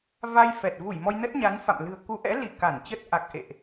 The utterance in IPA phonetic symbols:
v a˧ j f ɛ˨˩ t̚ v u˧˩ j m ɔ˧ j n ə˦˥ t̚ ɲ a˨˦ n f a̰˧˨ m l ɨ̤˨˩ ə̯ k u˨˦ ʔ ɛ̰˧˥ l i˧˩ k a˧˩ n t͡ɕ ə˦˥ t̚ ʔ a˨˩ k̚ ʔ ḛ˧˨ ʔ

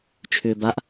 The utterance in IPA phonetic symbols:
t͡ʃʰ ʏː b a ʔ

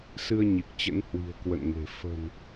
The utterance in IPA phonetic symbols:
s ɨ˧ ə̯ ɲ i˨˩ k̚ t͡ɕ ə̰˧˥ n h w i̤˨˩ ə̯ k w ə̰˧˨ n ŋ e̤˨˩ f ə̤˨˩ n

